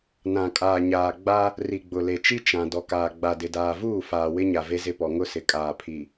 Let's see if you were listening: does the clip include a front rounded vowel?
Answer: no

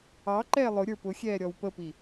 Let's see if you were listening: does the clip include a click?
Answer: yes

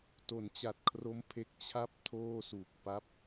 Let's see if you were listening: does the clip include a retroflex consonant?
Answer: no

